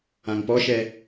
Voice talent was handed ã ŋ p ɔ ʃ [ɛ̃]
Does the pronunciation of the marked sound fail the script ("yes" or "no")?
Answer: yes